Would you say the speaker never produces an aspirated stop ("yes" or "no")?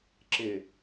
yes